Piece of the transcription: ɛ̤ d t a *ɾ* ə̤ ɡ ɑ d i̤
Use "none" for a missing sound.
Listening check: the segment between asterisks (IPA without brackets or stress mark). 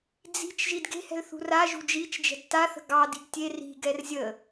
θ